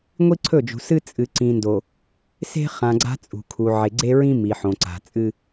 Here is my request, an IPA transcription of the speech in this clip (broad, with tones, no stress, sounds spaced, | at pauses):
ŋʷ i˦ ǀʰ ɵ˦˨ d͡ʒ ṳ˨ s ɨ˦ t͡sʼ ɨ˨ ǀ ĩ˨ n d o˨ | s e̤˦ χ ã˨ ɡ͡ǀ a̤˦ t͡sʼ ṳ˨ kʰ u˨ ʕ e˨ ɡ͡ǀ e˦ ɹ ĩ˦ m i˨ ħ õ˨ ǀ a̤˨ t͡sʼ ɨ˦